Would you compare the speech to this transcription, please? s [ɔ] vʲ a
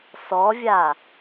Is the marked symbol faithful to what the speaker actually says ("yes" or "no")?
yes